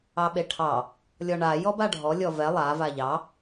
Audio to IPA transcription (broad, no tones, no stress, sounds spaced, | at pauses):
ɑ ɓ e ʈʰ ɑ | lʲ ɔ ɳ a j ɔ b a ɖʱ ɔ lʲ ɔ v ɛ lˠ a v a ʎ ɑ